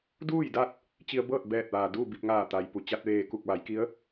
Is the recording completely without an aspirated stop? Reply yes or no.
yes